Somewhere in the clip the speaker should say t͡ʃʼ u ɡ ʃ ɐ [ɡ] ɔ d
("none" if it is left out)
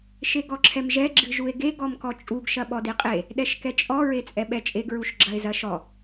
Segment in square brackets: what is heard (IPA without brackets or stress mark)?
ɓ